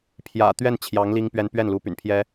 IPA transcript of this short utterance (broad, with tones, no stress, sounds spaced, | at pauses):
pʰ j ä̰˨˩ t̪ ɥ ɛ˥˩ n t͡ɕʰ j ɑ˧˥ ŋ l i˥ ŋ p ɥ ɛ˥ n p ɥ ɛ˥˩ n l u˧˥ p y̰˨˩ n pʰ j ɛ˥